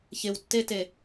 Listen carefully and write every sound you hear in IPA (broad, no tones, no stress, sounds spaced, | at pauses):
ç ɪ w tː e t e